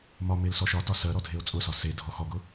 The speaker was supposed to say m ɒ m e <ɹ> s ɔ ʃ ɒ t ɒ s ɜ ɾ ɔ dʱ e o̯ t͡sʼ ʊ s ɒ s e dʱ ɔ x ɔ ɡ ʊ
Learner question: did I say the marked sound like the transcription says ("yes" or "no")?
no